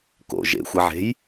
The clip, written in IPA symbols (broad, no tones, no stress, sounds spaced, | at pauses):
k o̰ ʒ ḛ xʷ ɐ ʕ e̤ j